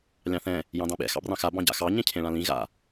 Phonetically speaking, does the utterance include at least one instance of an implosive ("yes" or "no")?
yes